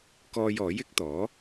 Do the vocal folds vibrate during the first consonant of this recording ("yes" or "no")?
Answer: no